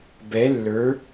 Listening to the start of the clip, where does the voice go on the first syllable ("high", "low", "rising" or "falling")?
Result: rising